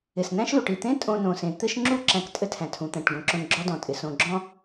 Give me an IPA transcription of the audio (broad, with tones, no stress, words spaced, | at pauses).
ɪ˩snæ̃˦ʃlu˩ʈ i˩t̪ẽ˦ tʼõ˨nõ˩sẽ˩ t̪ɘ˦ʃŋ͡ǁu˥ ǁæ̃˨ktʼɘ˦tʰæ̃˩tʰũ˩ t̪æ̃˩ʈɡõ˩ǁõ˨n ɡ͡ǁɔ˦dɔ̃˩ tʼɪ˩ sõ˨ɡ͡ǁɔ̃˥